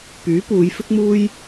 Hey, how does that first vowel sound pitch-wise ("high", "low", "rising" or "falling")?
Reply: rising